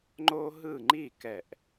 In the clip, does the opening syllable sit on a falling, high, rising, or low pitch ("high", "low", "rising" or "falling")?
high